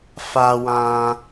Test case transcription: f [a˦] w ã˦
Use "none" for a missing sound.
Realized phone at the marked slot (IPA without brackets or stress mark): a˦